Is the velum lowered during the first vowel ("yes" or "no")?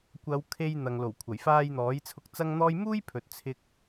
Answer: no